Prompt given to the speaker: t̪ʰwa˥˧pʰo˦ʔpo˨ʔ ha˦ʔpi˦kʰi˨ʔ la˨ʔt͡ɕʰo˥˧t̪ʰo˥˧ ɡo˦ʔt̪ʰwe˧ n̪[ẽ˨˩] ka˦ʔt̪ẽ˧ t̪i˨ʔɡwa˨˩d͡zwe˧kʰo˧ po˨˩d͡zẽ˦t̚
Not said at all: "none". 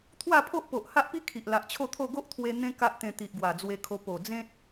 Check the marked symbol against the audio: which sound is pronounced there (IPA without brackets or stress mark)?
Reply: ẽ˦